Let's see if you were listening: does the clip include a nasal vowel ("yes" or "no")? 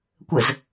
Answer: no